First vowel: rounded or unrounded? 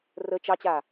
unrounded